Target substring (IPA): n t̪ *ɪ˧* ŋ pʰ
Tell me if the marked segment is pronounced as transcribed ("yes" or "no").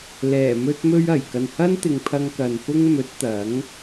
no